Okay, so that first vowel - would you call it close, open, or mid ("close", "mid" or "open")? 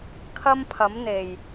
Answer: open